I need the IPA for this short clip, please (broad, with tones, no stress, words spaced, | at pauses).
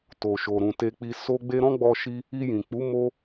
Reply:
to˨ʃo˨ɾũ˨ te˧k͡pi˧ so˧ɡ͡be˧ ɾɔ̃˦ɡ͡bɔ˧ʃi˧ | i˧jĩ˨k͡pu˨˦ mo˧